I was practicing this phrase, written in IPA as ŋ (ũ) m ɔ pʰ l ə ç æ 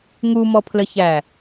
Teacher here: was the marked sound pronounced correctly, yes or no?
no